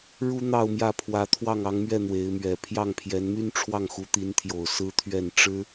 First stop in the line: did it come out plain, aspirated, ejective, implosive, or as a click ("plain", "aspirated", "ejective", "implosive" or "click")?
aspirated